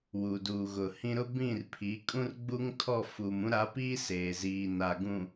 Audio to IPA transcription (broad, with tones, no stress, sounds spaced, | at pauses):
w u˨ d uː˨ ɣ ʊ˨ h ĩ˦ ɾ ʊ˦ b ĩ˦˨ r pʰ i˨˦ kʼ ũ˦ r ɡ͡b u˦ ŋ tʰ ɔ˦˨ f u˨ m ũ˦ ɾ a˨˦ p iː˦ s eː˨ z iː˨ n a˨ ɡ ũ˨